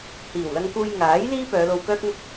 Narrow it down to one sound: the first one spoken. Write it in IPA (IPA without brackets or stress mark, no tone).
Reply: h